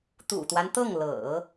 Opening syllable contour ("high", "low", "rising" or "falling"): low